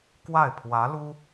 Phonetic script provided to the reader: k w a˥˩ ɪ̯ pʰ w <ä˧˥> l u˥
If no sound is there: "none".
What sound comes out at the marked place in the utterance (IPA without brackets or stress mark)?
ä˧˥